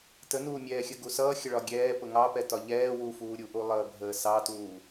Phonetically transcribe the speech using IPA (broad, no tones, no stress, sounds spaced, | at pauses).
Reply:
t ə n uː mʲ ɛː xʲ ə ɡ u s ʌː xʲ ə ɭ ɒ ɡʲ ɛː p ʊ ŋ ɑ p ɛ t ɒ ʎ ɛː w u f uː ɾʲ u ʔ u lˠ əː bʱ əː s ɑ t uː